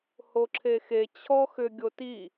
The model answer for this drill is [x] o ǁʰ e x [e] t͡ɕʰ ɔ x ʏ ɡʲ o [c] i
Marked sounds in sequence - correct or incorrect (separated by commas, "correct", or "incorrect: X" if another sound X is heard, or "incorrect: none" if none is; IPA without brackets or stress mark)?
incorrect: h, correct, incorrect: t